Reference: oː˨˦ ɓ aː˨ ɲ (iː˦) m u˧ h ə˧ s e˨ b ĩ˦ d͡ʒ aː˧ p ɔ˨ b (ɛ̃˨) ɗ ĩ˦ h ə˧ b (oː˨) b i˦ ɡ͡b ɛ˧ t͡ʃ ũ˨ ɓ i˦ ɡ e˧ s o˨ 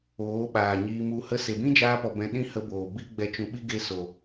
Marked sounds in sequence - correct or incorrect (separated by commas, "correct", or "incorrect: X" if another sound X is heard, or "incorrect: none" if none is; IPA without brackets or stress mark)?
incorrect: iː˧, incorrect: ɛ̃˧, correct